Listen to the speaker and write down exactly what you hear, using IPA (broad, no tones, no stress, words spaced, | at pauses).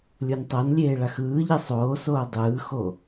lʲontˤɤnlʲeː ɭaxɯːʎɛ sˤoːsoː dˤɯːxo